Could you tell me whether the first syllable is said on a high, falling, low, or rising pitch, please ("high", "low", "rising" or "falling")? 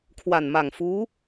low